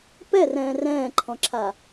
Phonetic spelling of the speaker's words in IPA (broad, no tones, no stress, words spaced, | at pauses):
pɛrɛ̃ː rɛ̃ːǃʰɔ̃ǁʰa